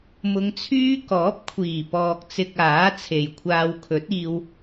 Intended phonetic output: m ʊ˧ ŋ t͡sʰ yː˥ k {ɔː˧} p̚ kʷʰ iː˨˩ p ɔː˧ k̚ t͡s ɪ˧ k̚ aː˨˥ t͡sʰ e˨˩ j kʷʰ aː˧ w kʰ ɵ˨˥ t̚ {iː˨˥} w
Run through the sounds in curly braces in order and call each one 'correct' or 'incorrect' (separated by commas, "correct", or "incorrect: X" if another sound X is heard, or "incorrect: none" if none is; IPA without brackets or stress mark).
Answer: incorrect: ɔː˨˥, incorrect: iː˧